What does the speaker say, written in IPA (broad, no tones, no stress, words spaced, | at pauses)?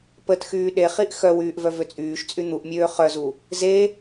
pətxyː ɗeχiʔ xœwyːʔ vœvøt͡sʼyːʃt͡sʼy n̪uʔmʲøː χœzu | ze